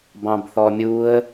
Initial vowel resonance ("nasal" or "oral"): nasal